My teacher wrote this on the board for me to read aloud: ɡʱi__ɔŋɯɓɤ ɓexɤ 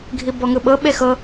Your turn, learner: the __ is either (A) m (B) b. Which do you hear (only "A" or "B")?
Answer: B